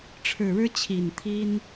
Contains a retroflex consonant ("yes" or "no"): yes